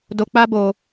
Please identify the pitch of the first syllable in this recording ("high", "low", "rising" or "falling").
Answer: low